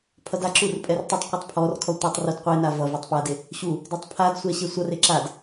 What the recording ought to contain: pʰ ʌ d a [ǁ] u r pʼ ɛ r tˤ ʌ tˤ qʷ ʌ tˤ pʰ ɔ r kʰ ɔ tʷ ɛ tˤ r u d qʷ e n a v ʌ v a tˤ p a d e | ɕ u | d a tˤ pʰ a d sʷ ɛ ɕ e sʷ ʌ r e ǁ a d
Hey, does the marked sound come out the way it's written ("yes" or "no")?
yes